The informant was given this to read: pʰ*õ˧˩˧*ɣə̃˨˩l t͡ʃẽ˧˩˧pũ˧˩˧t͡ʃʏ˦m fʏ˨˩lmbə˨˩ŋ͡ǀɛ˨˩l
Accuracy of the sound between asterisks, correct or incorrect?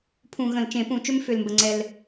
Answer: incorrect